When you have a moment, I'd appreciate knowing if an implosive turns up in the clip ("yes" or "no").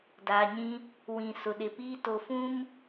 yes